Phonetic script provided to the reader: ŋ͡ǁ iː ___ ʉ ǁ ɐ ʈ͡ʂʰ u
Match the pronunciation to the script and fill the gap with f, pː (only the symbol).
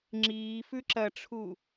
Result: f